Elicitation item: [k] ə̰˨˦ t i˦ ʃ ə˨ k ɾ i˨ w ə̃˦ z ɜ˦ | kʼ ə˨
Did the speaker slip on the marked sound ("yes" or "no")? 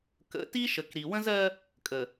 no